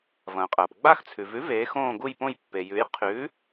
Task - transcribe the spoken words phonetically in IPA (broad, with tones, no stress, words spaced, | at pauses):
vɐ̃ː˩qʼɐː˩p ɡ͡ba˦˨xt͡sʰʉ˩vʉ˩˥veː˩˧x õː˦˨ɡu˦˨jpõ˦˨j pːe˩jʉ˩˥j qʰʉ˩˥